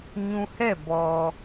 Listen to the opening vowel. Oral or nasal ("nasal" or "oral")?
nasal